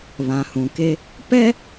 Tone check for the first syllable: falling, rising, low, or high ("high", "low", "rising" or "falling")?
low